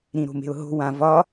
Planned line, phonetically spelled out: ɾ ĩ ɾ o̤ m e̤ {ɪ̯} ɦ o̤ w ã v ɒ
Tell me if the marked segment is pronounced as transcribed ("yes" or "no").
no